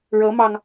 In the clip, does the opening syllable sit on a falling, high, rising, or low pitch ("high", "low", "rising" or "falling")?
rising